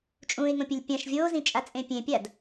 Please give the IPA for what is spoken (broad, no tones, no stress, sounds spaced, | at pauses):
t͡ʃʼ ũ ɪ̯ ŋ õ pʲ ə lʲ pʲ ã ʃ vʲ oː z ĩ t͡ʃʼ a t͡sʼ ẽ pʲ ẽ pʲ a d